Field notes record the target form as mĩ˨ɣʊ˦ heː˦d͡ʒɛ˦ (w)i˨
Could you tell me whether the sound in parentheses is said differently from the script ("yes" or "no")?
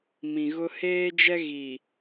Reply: yes